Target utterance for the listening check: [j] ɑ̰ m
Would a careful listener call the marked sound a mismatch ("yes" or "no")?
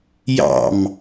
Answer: no